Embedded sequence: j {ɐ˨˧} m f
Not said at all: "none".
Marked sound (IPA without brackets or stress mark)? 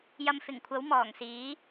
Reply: ɐ˧